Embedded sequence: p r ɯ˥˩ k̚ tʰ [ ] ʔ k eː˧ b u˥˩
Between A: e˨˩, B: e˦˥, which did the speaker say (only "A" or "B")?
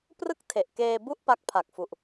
A